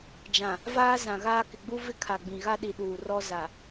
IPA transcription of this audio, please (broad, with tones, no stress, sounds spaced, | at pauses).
d͡ʒ ã˨ | v aː˦ z ã˨ ɣ aː˦ k ɪ˨ ɡ͡b u˦ v ɪ˦ kʰ a˨ ɡ͡b ĩ˨ ɣ a˦ ɗ i˨ ɗ uː˨ r ɔ˦ z a˨